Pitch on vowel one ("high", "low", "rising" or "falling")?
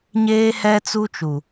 high